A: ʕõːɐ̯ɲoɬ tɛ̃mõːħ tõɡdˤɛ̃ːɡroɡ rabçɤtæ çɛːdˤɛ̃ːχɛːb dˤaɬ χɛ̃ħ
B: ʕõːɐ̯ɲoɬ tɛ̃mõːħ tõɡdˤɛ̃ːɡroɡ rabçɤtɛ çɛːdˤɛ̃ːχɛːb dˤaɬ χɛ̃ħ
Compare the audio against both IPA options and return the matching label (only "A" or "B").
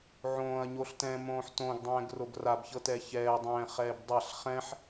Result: B